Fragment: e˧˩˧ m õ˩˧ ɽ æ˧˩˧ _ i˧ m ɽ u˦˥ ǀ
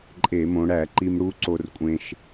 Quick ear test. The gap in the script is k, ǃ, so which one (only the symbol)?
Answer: ǃ